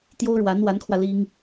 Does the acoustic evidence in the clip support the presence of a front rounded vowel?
no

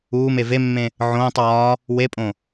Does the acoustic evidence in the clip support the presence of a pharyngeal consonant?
yes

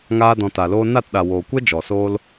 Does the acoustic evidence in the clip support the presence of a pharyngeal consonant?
no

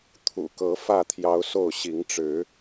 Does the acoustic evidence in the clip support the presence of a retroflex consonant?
yes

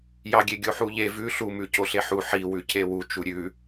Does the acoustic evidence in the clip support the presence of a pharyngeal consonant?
yes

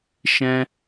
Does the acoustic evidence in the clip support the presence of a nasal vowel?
yes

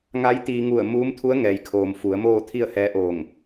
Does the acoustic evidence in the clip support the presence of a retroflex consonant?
no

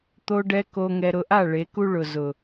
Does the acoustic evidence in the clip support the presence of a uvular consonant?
no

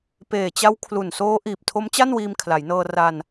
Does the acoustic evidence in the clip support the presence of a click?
no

